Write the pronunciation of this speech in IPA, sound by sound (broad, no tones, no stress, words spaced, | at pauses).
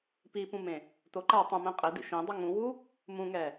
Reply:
pipũmẽ | toǃa tˤũmɛ̃ qʼɪdḭ ʃẽdˤʊ ŋũwu | mũŋɛ